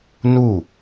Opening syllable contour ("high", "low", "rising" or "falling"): falling